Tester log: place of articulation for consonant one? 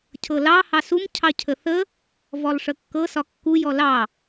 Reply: palatal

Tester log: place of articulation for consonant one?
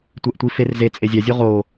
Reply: alveolar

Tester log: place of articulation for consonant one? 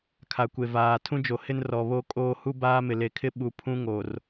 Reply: velar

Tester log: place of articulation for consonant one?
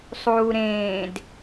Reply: alveolar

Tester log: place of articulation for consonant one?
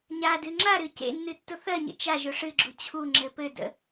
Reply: palatal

